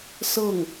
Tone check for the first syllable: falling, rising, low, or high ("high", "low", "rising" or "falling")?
falling